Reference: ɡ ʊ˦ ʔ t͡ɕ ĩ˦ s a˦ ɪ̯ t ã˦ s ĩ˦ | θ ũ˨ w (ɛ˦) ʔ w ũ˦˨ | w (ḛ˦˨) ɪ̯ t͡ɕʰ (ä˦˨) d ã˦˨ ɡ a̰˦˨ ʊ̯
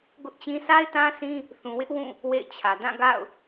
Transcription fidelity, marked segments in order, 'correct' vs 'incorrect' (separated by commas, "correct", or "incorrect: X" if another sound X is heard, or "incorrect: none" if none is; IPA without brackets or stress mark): incorrect: ɪ˦, correct, incorrect: ä˨